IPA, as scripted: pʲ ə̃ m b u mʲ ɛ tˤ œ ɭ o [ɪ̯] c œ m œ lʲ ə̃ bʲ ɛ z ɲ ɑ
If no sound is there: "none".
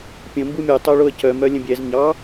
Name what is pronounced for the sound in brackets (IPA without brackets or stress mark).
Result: ə̯